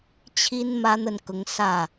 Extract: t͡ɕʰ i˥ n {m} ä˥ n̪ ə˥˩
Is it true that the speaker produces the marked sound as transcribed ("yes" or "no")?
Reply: yes